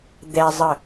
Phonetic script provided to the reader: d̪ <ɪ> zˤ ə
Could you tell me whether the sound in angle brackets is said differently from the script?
yes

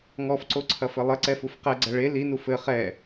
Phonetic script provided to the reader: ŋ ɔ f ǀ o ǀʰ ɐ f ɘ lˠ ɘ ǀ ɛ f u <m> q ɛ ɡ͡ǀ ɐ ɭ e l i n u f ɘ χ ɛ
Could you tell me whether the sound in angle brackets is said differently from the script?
yes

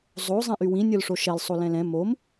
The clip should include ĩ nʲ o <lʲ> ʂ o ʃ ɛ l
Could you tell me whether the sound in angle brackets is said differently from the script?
yes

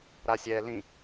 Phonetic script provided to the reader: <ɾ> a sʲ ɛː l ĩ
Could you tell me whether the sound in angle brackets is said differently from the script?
no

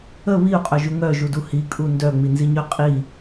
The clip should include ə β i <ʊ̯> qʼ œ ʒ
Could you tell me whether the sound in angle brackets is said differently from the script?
no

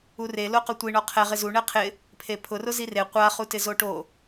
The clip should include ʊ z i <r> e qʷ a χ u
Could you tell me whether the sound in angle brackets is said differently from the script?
no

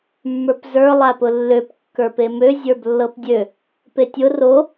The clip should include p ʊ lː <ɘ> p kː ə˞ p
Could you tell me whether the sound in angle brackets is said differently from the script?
yes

